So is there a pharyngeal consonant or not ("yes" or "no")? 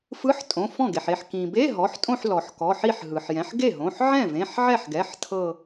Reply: yes